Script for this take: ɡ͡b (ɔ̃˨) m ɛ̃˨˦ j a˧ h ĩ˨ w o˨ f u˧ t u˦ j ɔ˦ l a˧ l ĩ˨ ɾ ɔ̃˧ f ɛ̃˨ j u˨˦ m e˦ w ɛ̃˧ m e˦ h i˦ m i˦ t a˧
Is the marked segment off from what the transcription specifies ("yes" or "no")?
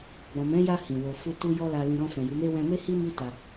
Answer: no